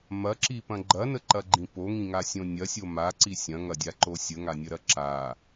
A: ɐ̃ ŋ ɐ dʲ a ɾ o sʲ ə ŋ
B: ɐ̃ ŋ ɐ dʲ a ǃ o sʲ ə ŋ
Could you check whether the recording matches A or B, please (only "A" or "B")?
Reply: B